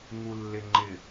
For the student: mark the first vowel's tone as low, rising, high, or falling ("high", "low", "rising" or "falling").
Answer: low